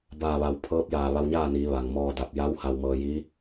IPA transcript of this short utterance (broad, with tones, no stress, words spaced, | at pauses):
baː˧˩ʋa˩w pʰɤː˧˥p̚jaː˧˩ ʋa˧wɲaː˥˨niː˩˧ ʋa˩ŋmɔː˧ da˧˩p̚ ja˧˥w ha˧wmɤː˧jiː˧˥